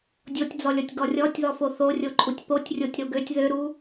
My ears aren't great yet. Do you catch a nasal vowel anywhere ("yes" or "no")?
no